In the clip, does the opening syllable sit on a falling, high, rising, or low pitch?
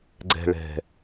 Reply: low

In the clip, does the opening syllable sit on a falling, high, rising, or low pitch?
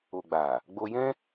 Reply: low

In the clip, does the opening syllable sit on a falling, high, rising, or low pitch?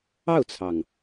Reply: falling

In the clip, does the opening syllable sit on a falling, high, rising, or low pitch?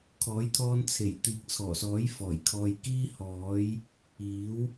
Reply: rising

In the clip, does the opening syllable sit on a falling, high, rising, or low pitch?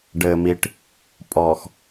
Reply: low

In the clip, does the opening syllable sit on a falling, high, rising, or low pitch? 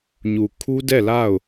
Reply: low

